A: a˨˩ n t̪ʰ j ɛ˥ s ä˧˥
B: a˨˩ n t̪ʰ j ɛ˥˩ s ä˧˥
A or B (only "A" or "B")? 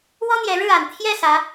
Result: B